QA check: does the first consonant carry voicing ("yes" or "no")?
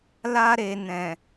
yes